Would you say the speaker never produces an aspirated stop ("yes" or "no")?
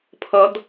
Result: no